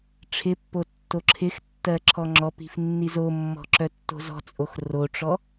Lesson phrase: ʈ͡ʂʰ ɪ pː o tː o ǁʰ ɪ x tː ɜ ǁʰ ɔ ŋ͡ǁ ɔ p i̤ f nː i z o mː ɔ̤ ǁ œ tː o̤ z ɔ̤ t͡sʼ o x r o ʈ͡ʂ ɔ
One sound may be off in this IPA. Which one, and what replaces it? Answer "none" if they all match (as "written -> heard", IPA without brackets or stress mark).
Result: none